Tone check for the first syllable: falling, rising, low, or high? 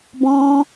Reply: high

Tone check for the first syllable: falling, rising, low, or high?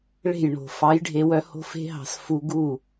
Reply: falling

